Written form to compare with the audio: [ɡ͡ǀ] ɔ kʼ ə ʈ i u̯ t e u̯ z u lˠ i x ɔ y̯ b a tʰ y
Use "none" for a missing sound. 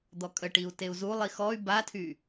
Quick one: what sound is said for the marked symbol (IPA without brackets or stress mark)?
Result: d̪